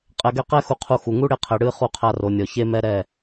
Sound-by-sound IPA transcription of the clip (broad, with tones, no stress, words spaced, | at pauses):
qʼɛ˨ɡɛ˧ qɛ˦ xu˧qʰu˧xu˨ ŋu˦ ɽe˧qʰɛ˨ɽɨ˦˨ χu˧qʰa˧ro˨nʲɔ˨ çe˦mɛ˦ ɾɛ˦˨